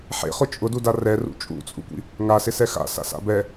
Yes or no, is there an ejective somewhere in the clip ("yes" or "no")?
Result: yes